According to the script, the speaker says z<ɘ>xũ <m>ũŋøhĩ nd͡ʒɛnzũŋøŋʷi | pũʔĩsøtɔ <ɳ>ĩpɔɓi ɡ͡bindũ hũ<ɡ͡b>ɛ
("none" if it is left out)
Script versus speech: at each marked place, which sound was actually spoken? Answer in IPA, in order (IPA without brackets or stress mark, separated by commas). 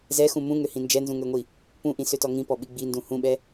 ɛ, m, ŋ, ɓ